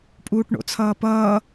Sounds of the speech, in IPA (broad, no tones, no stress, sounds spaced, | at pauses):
pʼ uː ʈ ɳ o̰ t͡sʰ ʌː p ʌː